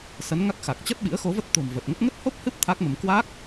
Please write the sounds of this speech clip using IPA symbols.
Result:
s ə˨˦ n ŋ a˦˥ k̚ x a˨˩ k̚ t͡ɕ ə˦˥ t̚ ɓ ḭ˧˥ ə̯ x o˨˦ v ə˦˥ t̚ t̪ o̤˨˩ m v ə˨˩ t̚ ŋ ə˦˥ t̚ ŋ ə˦˥ t̚ h o˦˥ p̚ h ɨ˦˥ p̚ t̪ʰ a˦˥ k̚ m ə˧ m k w a˦˥ k̚

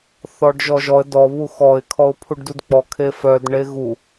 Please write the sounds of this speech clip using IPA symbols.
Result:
θ ɔ ɖ ʒ ɔ ʒ ɔ ə̯ d ɔ β u x ɔ ɪ̯ kʰ ɔ ʊ̯ pʰ u ɖ d u d k͡p ɔ kʰ e f œ d ɳ e ɣ u

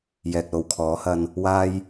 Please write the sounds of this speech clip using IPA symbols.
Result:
j ɛː˨ k̚ l o˨ w kʰ ɔː˨˥ h ɐ˧ n | w aː˧ j

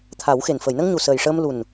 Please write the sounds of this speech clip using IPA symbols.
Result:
t̪ʰ a˨˩˦ w x e˨˩ n f əː˨˩˨ j n ə˧ ŋ ɲ u˨˩ s əː˨˩ j ʂ əː˧ m l u˨˩ n

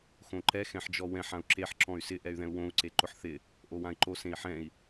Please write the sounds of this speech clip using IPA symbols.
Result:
x õ ǃ ɛ x ɛ̃ ħ d͡ʒ ɔ w ɛ̃ ħ ã u̯ ǁ e ħ ǁ ɔ̃ y̯ s ɪ ʔ ɛ y̯ ð ɛ̃ u̯ w õ u̯ ǀ e ǃ ʊ ħ θ ɪ | ʔ o w ã i̯ ǃ o s ẽ i̯ ħ ɛ̃ i̯

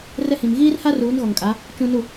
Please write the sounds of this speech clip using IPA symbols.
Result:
r ɛ˦ h ĩ˨ m ɣ iː˦ r h a˦ r uː˨˦ n ɣ ɔ˨ ŋ kʼ a˨˦ | t͡ʃ ũ˨ n u˨

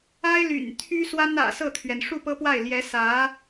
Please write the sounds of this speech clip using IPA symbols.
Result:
a˥ ɪ̯ l y̰˨˩ n t̪ʰ y˥ s w a˥ n ä̰˨˩ s ɤ˥˩ t̪ʰ ɥ ɛ˩ n ʂ u˥˩ p ɤ˥ p w a˥˩ ɪ̯ l j ɛ˧˥ s ä˧˥

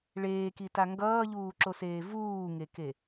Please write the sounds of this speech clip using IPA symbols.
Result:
ɭ eː k i t a ŋ ɡ ʌː ʎ uː ǁ o s eː v uː ŋ e k e

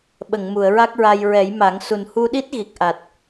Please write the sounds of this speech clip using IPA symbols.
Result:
ɓ ə˨˩˨ ŋ m u˨˩˨ ə̯ ɹ a˦˥ k̚ ɹ a˧ j ɹ ɛ˨˩˦ j m a˨˩˦ ŋ s u˨˩ n h u˧ ɗ i˦˥ t̚ ɣ i˨˩ k̚ ʔ a˨˩ t̚

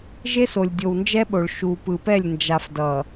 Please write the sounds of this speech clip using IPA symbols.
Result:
ʒ e˦ s o˨ lʲ dʲ o˨ w n d͡ʒ ɛ˦ ɓ o˨ ɭ ʃ u˨ p ɯ˨ p ɛ˦˨ lʲ n d͡ʒ a˨ f d ʌ˨

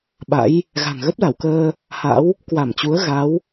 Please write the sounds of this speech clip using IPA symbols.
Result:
ɓ a̰˧˥ j | ɣ a̤˨˩ ŋ ɣ ə˦˥ p̚ l a˧˩ w k əː˧ | h a̰˧˥ w | k w a˧˩ m t͡ɕ u˨˦ ə̯ ɣ a˨˦ w

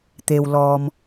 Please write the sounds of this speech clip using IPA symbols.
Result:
t̪ e˩ w l ɔː˩ m

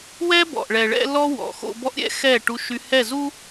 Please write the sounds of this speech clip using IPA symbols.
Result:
w ɛ˦ b ɔ̰˨ ʔ ɭ ɛ˨ ɭ ɛ̰˦ l ɔ˦ w ɔ̰˨ x o̰˦ b ɔ˦ ʔ ɾʲ ɛ̰˦ x ɛ˦˨ ʈ u˦ ʃ y˦ h ɛ˦˨ z u˦

